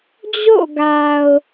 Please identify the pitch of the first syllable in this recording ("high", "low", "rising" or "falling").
falling